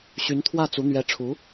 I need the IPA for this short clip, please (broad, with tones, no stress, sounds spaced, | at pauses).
ɕ y˧˥ n t̪ʰ w ä˥˩ t͡s u˧˥ n̪ ɥ ɛ˧˥ ʈ͡ʂʰ u˧˥